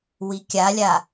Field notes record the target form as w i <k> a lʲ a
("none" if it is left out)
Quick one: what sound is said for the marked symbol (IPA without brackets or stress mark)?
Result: kʲ